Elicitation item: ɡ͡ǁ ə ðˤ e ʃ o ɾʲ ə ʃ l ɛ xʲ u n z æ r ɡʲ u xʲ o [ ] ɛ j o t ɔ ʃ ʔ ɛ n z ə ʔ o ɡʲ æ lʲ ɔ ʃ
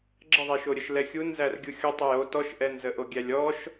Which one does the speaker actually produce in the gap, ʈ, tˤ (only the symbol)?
tˤ